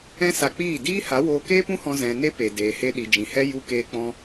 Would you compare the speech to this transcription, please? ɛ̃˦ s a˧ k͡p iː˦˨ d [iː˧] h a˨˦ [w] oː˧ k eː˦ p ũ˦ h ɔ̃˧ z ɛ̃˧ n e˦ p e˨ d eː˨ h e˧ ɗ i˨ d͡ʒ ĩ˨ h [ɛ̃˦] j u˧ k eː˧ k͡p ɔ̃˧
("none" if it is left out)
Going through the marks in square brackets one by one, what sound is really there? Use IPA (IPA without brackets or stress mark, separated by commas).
iː˦, w, ɛ˦